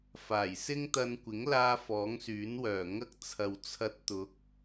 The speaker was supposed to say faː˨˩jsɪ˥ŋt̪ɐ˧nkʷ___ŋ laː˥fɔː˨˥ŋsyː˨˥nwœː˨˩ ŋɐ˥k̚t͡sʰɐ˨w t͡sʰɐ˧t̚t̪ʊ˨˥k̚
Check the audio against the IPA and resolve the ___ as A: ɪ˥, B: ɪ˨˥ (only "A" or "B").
B